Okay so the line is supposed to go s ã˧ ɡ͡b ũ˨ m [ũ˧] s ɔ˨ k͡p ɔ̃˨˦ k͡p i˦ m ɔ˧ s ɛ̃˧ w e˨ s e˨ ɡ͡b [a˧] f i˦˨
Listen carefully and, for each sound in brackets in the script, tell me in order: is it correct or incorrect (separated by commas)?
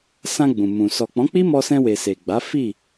incorrect, incorrect